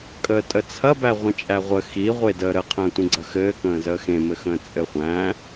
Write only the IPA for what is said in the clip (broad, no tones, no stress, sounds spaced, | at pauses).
kʼ əː tʼ ə t͡sʰ ɐ b æ ʁʷ ə̃ t͡ʃʼ æ ʁʷ ə x i ʁʷ e d əː ɾ ə qʰ ə̃ː tʷ ĩ ɡ͡ǀ ɐ x ɘː k ə̃ː z əː x ẽ m ɘ x ə̃ː t͡sʼ ɘ χʷ æ̃